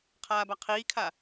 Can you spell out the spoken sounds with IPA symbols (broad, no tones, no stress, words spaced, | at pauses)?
qʰaːbaqʰiːkʰa